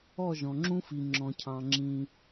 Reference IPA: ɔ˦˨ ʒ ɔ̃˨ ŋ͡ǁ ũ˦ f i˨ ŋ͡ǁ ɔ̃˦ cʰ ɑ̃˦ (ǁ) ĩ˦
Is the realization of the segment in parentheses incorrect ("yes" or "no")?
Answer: yes